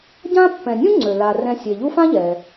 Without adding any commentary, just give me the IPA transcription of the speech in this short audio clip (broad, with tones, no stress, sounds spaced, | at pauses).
ɟ ã˥ pː ɛ̃˨ nʲ ũ˥ ŋ͡ǀ ø˩ l a˩ r ɛ̃˨ sʲ e˩ ʎ u˦ f ã˥ ʎ ɛ˩